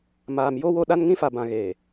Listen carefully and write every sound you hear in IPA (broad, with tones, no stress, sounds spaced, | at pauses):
m aː˨ m j o˦ w o˦ ɗ a˦ n ŋ ĩ˦ f a˨ b ã˨ ɣ eː˨